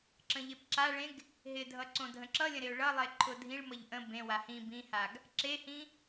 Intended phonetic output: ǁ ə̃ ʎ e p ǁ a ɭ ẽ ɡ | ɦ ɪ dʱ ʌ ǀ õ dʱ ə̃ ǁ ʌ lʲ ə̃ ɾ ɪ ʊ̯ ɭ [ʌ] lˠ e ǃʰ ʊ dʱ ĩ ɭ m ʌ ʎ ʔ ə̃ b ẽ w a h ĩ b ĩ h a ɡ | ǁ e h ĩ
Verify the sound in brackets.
correct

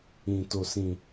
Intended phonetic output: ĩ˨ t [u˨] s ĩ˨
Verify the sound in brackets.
incorrect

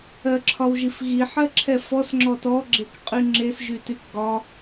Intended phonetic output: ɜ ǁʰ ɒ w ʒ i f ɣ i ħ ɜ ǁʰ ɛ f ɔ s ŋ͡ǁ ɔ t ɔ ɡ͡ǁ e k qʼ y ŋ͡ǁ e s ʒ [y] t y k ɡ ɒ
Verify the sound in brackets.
correct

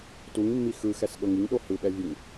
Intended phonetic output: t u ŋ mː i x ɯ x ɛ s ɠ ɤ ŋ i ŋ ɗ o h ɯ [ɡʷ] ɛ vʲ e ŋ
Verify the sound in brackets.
incorrect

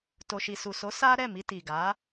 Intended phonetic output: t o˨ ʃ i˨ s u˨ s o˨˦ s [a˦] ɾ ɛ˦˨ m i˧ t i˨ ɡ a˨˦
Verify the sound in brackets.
correct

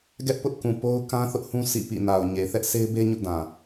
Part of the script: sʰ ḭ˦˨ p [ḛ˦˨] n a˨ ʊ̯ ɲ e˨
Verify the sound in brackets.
incorrect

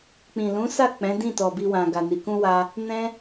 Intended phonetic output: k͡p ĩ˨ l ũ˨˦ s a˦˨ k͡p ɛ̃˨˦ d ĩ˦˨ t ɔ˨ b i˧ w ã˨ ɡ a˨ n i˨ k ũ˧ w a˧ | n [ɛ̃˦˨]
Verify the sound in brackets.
incorrect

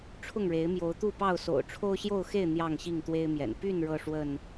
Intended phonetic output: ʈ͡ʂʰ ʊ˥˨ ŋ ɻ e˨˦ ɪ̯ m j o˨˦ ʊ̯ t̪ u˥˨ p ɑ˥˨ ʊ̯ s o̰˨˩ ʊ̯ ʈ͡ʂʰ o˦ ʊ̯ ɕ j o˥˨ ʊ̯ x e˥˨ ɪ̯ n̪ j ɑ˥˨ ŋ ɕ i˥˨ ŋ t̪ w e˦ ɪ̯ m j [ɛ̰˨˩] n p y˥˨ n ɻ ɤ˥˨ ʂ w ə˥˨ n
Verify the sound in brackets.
correct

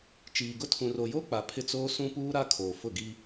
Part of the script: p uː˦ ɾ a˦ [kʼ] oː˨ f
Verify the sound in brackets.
incorrect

